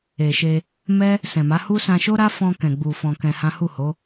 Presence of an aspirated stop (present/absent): absent